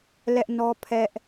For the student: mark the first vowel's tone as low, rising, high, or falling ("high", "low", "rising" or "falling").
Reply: high